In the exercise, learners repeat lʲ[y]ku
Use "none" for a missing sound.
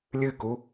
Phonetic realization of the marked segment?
ɨ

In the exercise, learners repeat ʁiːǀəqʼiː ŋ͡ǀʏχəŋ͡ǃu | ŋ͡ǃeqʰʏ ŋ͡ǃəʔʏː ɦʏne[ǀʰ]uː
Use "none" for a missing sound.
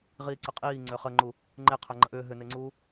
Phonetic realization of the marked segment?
ŋ͡ǀ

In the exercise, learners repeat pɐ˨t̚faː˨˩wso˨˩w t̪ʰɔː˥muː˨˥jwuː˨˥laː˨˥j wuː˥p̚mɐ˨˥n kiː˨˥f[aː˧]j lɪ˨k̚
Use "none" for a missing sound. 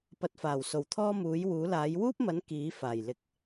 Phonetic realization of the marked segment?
aː˨˩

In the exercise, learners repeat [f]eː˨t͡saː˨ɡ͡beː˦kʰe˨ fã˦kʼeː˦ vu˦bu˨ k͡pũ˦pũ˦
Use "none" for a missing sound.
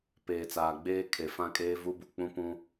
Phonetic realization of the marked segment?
p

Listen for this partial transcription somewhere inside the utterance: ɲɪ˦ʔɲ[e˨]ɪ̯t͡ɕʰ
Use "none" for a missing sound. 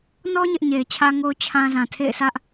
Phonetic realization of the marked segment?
e˨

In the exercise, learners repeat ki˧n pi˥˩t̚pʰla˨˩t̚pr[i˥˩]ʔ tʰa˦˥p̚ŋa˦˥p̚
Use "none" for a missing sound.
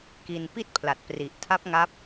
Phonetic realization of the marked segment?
i˨˩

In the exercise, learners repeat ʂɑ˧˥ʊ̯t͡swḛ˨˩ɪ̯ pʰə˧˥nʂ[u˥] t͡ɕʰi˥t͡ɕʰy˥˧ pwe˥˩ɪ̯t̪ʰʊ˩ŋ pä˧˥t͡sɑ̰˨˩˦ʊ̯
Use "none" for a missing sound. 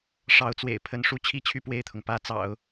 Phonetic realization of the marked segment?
u˥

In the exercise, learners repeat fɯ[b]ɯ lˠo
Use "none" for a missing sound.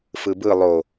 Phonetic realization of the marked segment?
b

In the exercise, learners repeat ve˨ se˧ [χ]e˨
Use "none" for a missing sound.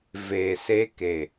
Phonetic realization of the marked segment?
k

